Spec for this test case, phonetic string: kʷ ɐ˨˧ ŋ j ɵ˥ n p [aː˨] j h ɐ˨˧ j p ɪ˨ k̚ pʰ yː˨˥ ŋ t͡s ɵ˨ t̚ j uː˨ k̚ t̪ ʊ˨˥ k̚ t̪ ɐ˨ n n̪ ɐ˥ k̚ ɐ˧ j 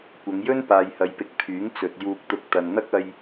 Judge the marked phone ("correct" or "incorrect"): correct